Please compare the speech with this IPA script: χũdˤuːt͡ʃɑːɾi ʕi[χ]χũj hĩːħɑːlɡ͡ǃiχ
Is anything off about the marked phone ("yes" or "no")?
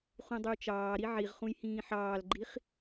yes